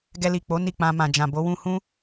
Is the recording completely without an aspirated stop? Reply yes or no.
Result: yes